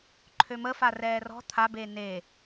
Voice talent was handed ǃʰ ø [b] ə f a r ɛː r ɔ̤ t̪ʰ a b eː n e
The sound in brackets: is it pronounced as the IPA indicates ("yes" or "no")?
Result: no